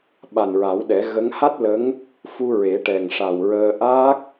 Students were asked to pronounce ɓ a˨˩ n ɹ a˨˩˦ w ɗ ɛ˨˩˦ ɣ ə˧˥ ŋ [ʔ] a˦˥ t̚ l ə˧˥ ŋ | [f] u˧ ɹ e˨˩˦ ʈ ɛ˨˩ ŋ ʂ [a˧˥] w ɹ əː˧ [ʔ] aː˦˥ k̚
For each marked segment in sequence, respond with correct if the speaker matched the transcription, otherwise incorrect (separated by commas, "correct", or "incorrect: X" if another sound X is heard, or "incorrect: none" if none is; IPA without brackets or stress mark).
incorrect: h, correct, incorrect: a˨˩, correct